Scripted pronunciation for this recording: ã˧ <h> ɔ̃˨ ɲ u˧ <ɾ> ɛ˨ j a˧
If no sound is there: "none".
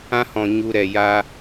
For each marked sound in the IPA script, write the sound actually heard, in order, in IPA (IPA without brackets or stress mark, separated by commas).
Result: h, ɾ